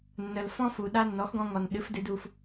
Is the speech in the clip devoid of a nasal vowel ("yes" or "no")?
no